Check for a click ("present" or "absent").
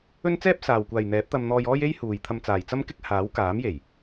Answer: absent